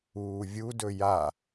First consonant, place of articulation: labial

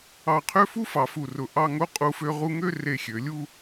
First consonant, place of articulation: uvular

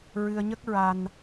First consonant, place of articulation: alveolar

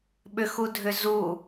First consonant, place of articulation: labial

